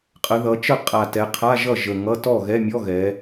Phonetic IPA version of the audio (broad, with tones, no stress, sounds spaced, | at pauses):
qʼ ə˩˧ ð ʌ˩˧ t͡ʃ ə˥˩ qʼ a˨˩ t ɛ˩˧ qʰ a˧˥˧ ʒ ʌ˥˩ ʒ ə˨˩ ŋ ʌ˧˥˧ t ɔ˥˩ ɣ ɛ˧˥˧ mʲ ɔ˧˥˧ ɣ ɛ˩˧